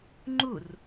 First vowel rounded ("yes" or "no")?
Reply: yes